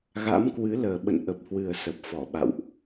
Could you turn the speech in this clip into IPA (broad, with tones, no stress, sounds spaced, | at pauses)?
ɣ a̰˧˥ m k w ɨ˨˦ l əː˨˩ ɓ ə̰˧˨ n ʔ ə˨˩ p̚ h w ɨ˨˩ ə̯ s ə˨˩ p̚ f ɔ˧˩ ɓ a̰˧˨ w ʔ